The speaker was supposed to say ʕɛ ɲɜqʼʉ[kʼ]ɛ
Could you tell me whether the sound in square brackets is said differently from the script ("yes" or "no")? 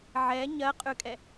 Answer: no